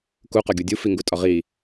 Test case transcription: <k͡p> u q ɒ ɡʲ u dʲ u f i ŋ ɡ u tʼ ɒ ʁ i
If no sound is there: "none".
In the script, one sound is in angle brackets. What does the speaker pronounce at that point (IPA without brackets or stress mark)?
k